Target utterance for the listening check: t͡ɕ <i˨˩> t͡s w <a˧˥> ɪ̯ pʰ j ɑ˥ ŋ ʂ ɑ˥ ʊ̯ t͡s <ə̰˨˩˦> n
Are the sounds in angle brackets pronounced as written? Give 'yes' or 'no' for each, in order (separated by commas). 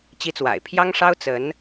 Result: no, no, no